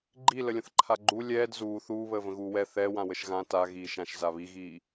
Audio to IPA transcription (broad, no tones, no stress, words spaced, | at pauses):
ɡ͡ǃi ləlʲə̃θǃʰaɡ͡ǃu lʲɛːd zuː θuːβəːvə̃ ɣuːwɛ θɛ wãwəʃɣã ta ɣiːʃãʃ zaβiɣiː